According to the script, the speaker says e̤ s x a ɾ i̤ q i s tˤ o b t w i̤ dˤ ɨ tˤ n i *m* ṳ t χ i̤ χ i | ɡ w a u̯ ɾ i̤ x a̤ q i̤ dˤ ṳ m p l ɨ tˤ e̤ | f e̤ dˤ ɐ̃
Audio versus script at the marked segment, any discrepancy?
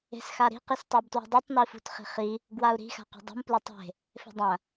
yes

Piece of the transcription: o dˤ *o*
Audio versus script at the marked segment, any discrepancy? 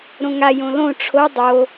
no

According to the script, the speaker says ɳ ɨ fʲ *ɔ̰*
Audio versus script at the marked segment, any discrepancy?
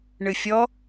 yes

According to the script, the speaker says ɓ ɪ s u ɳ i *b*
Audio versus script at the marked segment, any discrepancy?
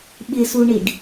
yes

